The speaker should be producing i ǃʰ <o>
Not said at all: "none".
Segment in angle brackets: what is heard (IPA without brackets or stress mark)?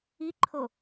o